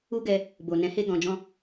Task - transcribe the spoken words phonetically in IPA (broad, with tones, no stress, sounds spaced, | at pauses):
u˦ ɡ ɛ˧ | b o˨ n ɛ̃˨˦ h e˧ ɡ ɔ̃˨ d͡ʒ ɔ̃˧